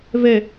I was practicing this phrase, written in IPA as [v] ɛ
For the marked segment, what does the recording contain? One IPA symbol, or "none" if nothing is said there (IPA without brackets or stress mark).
v